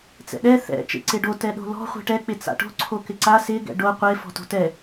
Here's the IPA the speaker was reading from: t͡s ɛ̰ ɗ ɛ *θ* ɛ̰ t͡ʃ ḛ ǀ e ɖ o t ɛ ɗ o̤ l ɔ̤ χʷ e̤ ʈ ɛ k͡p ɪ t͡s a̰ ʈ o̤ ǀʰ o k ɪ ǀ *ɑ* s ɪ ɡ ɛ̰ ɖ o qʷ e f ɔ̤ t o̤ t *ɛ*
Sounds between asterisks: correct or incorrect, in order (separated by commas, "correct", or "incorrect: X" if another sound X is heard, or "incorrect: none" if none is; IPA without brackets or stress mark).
correct, incorrect: a, correct